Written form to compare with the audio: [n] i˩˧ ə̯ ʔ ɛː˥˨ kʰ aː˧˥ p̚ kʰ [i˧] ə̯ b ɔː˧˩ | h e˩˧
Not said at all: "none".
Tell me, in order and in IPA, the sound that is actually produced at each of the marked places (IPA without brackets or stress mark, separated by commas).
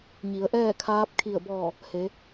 ɲ, i˧˩